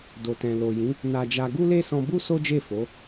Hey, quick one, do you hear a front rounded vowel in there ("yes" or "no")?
no